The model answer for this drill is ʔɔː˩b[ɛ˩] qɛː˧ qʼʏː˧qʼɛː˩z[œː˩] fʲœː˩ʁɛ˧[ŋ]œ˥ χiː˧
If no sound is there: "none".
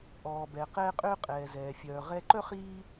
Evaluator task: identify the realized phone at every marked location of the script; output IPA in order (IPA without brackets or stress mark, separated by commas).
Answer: ɛ˩, ɛː˩, ǃ